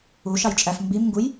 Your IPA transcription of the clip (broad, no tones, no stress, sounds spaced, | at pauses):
u ʃ ɑ j t͡ʃʼ æ f m b i m ŋ ɡ u j